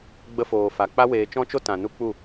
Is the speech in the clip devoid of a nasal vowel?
no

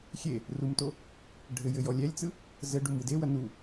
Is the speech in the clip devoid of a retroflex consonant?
no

